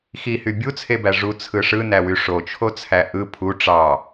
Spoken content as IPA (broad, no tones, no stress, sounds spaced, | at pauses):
x i h y bʲ u t͡sʰ e b æ ʐ u t͡sʰ ɯ ʂ ɯ n æ w y ʂ o t͡ʃʰ o t͡sʰ æ ʔ ɯ pʰ u ʈ͡ʂ ɑ